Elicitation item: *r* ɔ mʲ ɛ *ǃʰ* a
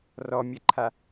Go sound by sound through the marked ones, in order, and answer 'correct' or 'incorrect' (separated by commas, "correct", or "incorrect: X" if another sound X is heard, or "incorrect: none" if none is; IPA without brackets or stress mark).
correct, correct